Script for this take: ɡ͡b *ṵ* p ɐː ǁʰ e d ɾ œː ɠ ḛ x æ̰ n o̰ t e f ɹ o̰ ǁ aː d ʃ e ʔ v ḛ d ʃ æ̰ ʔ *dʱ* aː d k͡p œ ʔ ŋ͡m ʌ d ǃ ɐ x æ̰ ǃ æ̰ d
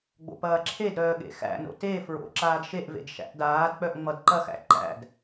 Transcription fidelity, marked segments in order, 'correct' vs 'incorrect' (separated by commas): incorrect, incorrect